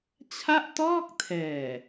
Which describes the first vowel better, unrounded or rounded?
unrounded